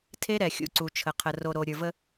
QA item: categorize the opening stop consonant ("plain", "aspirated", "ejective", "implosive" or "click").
aspirated